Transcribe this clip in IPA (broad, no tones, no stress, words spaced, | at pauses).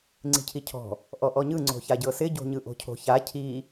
ŋ͡ǀi̤cʰicʰɔ̤ | ʔɔʔɔɲɯ ŋ͡ǀo̤çaɟɤsɪ ɟo̤ɲɯʔo̤cʰo̤ ça cʰi